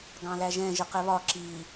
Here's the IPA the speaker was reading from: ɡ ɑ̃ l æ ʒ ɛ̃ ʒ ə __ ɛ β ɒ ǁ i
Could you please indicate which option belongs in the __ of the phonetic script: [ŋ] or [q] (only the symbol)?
q